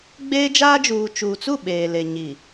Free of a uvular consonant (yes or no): yes